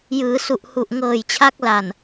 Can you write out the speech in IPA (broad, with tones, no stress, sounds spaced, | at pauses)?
j ɯː˩˦ s u˨˩ ʔ h u˨˩ ʔ ŋ ɤː˨˩ j t͡ɕʰ a˦˥ k̚ l a˨˩ n